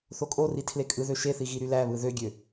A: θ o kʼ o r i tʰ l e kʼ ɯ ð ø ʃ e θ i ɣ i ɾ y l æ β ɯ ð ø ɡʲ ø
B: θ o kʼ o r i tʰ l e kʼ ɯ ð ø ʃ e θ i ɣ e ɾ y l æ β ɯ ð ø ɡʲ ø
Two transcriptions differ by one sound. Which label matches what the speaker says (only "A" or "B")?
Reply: A